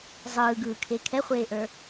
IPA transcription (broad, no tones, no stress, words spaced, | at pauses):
zˤɯːɡɯːkʰe kʰɛχʷeːʔə˞